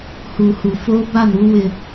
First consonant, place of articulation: glottal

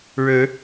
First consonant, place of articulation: retroflex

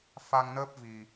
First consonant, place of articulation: labial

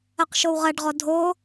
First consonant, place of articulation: uvular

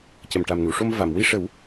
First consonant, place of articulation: palatal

